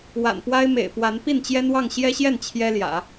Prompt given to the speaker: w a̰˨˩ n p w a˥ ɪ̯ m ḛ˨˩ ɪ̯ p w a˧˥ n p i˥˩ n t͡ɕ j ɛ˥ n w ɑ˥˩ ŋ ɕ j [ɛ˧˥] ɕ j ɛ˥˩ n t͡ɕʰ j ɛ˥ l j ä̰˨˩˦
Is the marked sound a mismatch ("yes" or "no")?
yes